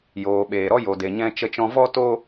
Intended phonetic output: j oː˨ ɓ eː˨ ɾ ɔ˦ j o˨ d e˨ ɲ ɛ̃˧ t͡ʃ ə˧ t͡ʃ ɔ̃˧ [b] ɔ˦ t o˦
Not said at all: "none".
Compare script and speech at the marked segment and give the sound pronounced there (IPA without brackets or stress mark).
v